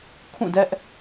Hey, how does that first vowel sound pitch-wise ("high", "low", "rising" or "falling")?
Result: falling